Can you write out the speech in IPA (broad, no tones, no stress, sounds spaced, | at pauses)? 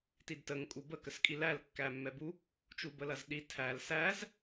t i d t ə ŋ kʼ u b ə k ə s kʼ i l æ l kː æ mː ɛ b u | t͡ʃ u b ə l ɐ z ɗ i tʰ æ l s æ z